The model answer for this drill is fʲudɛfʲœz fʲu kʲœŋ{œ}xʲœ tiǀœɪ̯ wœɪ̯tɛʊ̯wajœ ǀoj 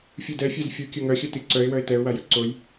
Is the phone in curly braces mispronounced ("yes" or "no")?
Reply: no